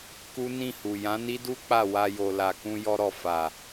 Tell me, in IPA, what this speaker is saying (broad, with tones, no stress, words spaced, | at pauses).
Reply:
ku˦ nĩ˦˨hu˨ jã˨˦ni˦du˦ k͡pa˦˨ wa˧jo˨ la˨kũ˧ jɔ˧ɾɔ˨ fa˨